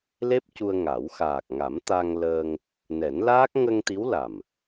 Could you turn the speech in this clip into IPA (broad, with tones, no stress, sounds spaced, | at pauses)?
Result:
l e˦˥ p̚ c u˧ ə̯ ŋ a˨˩˦ w x aː˨˩ k̚ ŋ a˨˩˦ m t̪ a˧ ŋ l əː˧ ŋ | n ɛ˨˩˦ n l aː˦˥ k̚ ŋ ə˧ ŋ t̪ i˧˥ w l a˨˩ m